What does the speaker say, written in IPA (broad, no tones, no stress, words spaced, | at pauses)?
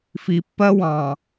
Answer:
fi pːɜ wɑ̃